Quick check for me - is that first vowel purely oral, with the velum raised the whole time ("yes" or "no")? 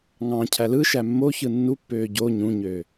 no